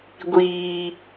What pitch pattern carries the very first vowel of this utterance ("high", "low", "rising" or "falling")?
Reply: low